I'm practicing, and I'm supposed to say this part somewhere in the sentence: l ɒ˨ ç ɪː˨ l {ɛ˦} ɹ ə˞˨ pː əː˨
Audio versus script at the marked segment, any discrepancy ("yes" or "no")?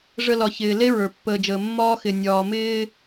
yes